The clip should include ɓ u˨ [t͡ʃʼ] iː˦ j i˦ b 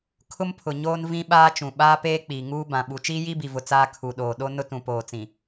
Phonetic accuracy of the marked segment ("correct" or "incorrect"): incorrect